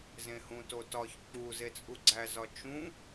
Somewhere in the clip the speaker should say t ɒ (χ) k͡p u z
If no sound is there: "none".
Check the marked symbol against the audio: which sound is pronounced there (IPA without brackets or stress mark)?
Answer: ç